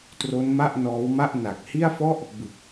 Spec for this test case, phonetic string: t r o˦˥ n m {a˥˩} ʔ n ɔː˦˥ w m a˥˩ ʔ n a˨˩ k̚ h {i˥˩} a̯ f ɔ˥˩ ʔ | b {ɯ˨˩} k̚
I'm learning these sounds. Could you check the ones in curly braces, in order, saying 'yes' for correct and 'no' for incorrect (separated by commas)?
yes, yes, yes